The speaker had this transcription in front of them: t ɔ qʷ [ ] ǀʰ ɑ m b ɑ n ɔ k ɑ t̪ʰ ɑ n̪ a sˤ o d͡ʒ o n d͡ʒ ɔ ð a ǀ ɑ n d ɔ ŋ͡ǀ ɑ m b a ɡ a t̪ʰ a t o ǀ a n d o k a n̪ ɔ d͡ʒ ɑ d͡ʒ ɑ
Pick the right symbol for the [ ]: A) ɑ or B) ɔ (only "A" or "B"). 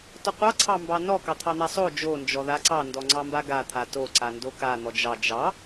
A